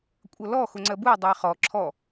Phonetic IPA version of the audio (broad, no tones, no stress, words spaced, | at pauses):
kʷʼʌlɔ xʊŋ͡ǀɜbuɪ̯ dˤʊɪ̯χɔ ǁʰɔ